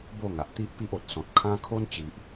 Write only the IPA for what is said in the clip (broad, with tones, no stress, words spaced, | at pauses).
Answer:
bo˥˧ŋa˨ʔ t̪i˦ʔpi˦ʔo˨t̚ sɔ̃˨t̚kʰã˦ kʰo˦nt͡ɕi˨ʔ